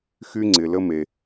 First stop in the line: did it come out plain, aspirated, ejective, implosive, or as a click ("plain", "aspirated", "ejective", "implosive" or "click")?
click